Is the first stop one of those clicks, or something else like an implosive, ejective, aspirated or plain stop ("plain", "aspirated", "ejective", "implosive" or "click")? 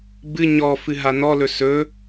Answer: plain